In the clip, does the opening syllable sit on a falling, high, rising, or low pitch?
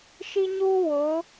high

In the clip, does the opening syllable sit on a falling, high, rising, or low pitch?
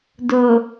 low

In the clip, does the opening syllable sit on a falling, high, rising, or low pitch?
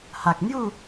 low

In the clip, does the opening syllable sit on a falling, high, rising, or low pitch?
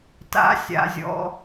rising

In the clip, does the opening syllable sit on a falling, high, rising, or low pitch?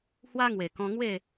high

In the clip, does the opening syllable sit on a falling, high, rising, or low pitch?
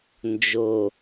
low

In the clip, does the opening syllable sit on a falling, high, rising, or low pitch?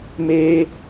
high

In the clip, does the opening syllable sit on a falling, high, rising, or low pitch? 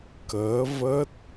rising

